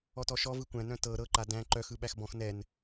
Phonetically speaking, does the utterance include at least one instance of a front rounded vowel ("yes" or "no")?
yes